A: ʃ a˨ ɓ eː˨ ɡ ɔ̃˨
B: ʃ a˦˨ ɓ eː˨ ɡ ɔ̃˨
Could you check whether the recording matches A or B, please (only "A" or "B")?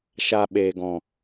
A